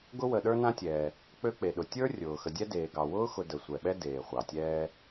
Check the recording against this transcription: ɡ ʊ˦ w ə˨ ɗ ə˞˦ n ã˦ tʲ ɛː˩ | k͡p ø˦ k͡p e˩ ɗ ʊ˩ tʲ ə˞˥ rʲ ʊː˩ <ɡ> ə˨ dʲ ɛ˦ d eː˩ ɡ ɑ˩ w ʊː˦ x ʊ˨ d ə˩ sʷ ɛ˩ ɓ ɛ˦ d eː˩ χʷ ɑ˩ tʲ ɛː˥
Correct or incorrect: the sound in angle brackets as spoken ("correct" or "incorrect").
incorrect